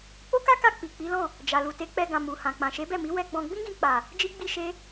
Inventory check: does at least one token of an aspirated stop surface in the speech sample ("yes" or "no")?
no